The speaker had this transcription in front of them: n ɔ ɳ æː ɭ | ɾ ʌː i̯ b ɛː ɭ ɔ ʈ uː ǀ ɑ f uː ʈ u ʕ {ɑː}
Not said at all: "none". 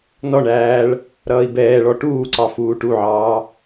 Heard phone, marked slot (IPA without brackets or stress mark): ɑː